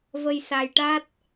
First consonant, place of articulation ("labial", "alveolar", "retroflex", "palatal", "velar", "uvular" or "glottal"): labial